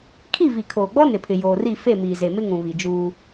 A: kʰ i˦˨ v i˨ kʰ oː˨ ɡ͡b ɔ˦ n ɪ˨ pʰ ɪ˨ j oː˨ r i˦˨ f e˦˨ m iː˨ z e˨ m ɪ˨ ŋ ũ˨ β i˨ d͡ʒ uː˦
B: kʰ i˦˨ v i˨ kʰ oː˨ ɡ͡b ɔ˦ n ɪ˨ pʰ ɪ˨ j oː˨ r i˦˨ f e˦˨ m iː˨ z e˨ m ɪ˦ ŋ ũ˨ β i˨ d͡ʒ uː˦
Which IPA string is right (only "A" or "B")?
B